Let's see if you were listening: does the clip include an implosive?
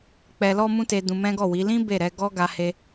no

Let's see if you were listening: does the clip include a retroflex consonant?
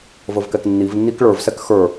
yes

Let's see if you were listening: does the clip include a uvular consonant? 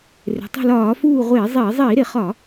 yes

